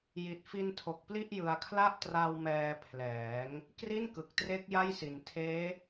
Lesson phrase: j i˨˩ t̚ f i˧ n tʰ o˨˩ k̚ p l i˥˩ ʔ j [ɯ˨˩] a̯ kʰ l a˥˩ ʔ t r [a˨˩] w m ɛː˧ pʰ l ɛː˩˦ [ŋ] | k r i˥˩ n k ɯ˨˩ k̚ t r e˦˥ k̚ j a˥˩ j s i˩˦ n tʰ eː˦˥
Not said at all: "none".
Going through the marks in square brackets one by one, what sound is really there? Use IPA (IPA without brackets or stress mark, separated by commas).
ɯ˨˩, a˧, ŋ